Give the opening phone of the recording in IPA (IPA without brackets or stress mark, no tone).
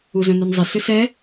u